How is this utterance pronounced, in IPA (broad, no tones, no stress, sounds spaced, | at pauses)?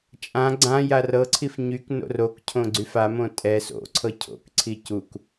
t͡ʃʼ ã ɡ͡ǀ ã j a r ɤ ǀʰ i f ɲ y k n o̰ r o k cʰ õ ɡ͡ǀ y f a m õ tʼ ɛ s o̰ ǀʰ ɤ cʰ o̰ k ǀʰ i c u k